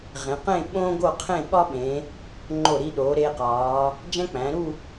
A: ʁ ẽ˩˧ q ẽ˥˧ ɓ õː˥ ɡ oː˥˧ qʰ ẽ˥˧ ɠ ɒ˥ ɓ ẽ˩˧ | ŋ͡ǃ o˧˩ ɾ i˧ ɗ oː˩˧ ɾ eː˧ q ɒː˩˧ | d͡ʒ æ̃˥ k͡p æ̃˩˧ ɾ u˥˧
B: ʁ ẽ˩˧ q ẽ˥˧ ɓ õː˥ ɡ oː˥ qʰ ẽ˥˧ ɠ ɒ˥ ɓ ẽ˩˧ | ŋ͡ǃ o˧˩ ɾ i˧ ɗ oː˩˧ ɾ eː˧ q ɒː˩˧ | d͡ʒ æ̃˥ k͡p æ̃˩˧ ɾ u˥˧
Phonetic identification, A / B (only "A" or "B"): A